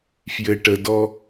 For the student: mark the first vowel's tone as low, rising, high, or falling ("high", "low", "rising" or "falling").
low